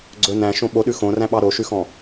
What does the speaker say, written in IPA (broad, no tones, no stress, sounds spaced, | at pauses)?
ɡ͡ǀ ɵ n æ̃ ʃ õ ɓ o ɗ ʉ x õ r æ̃ ɓ ɑ ɾ o ʃ ʉ x ɔ̃